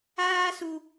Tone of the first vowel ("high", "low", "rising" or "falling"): high